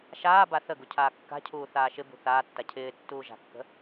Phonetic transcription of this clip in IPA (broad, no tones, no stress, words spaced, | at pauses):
ʃaːba θəɡu cʰaːkːa̤cʰuː θaːʃɪbṳ θaːtːa cʰɪːtːuː ʒa̤kːə̤